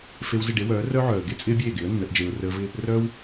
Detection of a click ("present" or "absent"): absent